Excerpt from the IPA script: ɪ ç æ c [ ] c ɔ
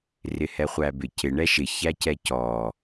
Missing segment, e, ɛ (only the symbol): ɛ